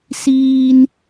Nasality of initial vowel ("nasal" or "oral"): oral